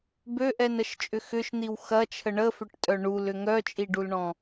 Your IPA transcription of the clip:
bøʔɛnəʃt͡ʃʼʏ xʏʃn̪iw xɐt͡ʃʰə ɳəfʏʈtʼœ ɳulʏ ŋœt͡ʃʼiɖulɳɔ̃

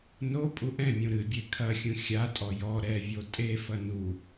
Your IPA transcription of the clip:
no pʼuʔɛ̃mʲũ ɾɨbʲe kʰɐxʲũ xʲatʼɔ jɔ ɾɛvʲo tʼefɐ nu

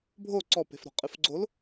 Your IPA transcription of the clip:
bʱo ǀɔpe̤fɾɔ̤ qʼɨfɡ͡ǀol

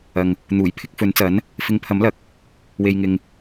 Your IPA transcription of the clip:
ɐ˨ŋ | n̪uː˨˩jpʰɪ˧k̚fɵ˨˥nt͡sɐ˨˥n | fɪ˨˧ŋpʰɐ˨˥mlɐ˨˥k̚ | we˧jŋɪ˧ŋ

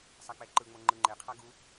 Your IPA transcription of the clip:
sˤak͡pɛǃɯŋ͡mo ŋ͡ǃɯŋ͡ǃeqʰa ɡu

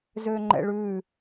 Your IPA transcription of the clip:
zøŋ͡ǃɛ̰ɭʉ

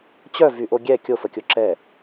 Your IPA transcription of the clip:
t͡ɕœvyʔo ɡʲɛ kʲofəkʲo ǁɛ

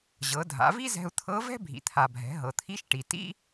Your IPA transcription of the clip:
ʑɤ˩˧dʱa̰˩˧vi˥ zɛ̤˧u̯t̪ʰɤ˧˥vɛ̤˥ bʱḭ˩t̪ʰa˩bʱɛ̤˩˧ ɦɤ˩t̪ʰi˧˥ʃʈi˩ tḭ˥

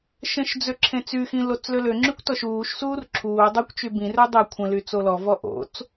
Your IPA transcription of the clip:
ʃə̃ʃd͡zø ǁʰẽt͡syxĩ lot͡sløløŋ͡ǁykʷ tɔʃuːʃsuːr ǁʰuː dˤekʷt͡ʃy bĩrø dˤe kʷʰə̃ly t͡solɔvɔ ʔo̰t͡s

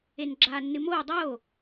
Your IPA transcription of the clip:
enɡ͡ǁaːnːɨmoː dˤoː

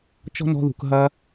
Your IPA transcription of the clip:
t͡ʃɔ̤˦nɔ̤˧ðṳ˨k ɦɐ˧

